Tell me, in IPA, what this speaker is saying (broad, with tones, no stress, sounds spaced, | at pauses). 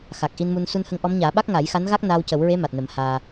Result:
x a˨˩ k̚ ʔ i˧ n m u˧ n s u˧ n h ə˧˥ ŋ ʔ ɔ˧˥ m ɲ aː˨˩˦ ɓ a˦˥ k̚ ŋ a˨˩˦ j x a˧˥ n ɣ a˦˥ k̚ n aː˧ w c ə˨˩˦ w ɹ e˧˥ m a˨˩ t̚ n ə˨˩˦ m h aː˧